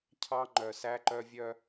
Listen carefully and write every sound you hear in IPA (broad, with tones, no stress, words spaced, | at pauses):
cʰɑ˦ŋ͡ǃœ˨sæ˦ǃœ˦ vʲœ˦